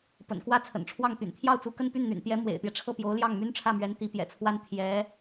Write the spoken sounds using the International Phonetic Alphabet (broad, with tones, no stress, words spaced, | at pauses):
pə̰˨˩nkwä˥t͡sʰə̰˨˩nʈ͡ʂʰwɑ˥˩ŋ t̪y̰˨˩nt̪ʰjɑ˥˩ʊ̯t͡su˧˥kə˥˧n py˥˩nn̪y̰˨˩nt̪jɛ˧˥ mwḛ˨˩ɪ̯t̪jɛ˦ʈ͡ʂʰɤ˥˩pjo˧˥ʊ̯ ljɑ˥˩ŋmy˥nʈ͡ʂʰä˥˩mɥɛ˧˥n t̪i˧˥pjɛ̰˨˩t͡sʰwa˥n t̪ʰjɛ˧˥